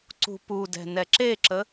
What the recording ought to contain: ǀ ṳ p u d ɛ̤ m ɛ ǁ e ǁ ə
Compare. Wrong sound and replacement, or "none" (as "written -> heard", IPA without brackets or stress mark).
m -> n